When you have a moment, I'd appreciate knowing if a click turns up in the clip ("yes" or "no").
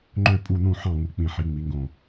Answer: yes